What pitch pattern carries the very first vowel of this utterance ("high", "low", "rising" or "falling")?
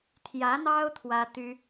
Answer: rising